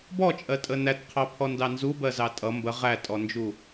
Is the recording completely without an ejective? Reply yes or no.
no